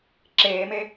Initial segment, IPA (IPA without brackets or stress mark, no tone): ǁ